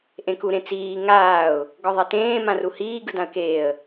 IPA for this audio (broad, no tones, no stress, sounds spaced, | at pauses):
ʔ ẽ k u ɾ ẽ t͡s iː ŋ aː ʊ̯ | ɡ ɔ ðˤ i t ẽː m ã r u h iː ɡ ɯ d ã ə̯ k eː ə̯